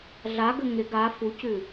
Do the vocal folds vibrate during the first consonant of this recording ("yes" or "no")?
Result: yes